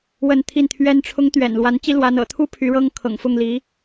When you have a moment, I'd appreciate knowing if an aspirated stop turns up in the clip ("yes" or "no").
yes